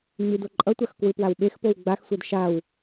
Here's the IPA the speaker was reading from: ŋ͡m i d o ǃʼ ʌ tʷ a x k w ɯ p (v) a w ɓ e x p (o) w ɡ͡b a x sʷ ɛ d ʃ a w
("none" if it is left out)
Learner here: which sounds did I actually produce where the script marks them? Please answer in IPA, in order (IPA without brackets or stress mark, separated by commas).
w, o